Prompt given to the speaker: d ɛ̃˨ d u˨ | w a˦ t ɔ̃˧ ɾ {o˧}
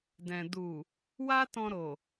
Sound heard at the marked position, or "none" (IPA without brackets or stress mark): o˨